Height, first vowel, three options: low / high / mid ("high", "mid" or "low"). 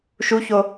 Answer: high